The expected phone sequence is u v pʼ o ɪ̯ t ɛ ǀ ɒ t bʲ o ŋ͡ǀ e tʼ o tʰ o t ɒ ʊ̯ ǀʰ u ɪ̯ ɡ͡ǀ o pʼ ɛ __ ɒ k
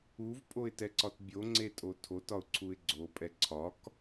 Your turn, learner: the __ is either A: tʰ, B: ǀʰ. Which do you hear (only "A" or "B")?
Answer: B